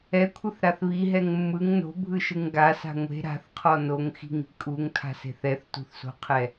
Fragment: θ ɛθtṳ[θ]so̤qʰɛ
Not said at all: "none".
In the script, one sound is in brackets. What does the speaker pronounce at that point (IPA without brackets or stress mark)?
θ